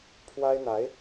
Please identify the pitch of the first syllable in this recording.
high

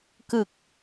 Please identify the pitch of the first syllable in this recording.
low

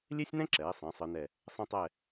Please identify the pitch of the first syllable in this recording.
high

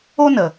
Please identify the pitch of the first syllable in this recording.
high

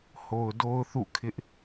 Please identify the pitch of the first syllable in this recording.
low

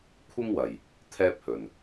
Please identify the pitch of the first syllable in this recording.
high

